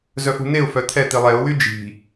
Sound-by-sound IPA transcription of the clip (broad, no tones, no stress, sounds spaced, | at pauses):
z œ f ṳ n e ʊ̯ f œ t̪ʰ ɛ t̪ i lˠ ɛ ʊ̯ w y d͡ʒ i̤